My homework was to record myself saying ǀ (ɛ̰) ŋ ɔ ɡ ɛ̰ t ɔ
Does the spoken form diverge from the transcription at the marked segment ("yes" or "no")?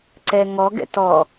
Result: yes